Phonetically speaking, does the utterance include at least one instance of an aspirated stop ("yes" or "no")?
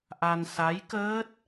no